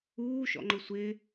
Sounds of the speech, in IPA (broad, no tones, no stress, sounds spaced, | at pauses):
uː ʃ ɔ̰ ŋ͡ǃ ʊ sʷ ɪ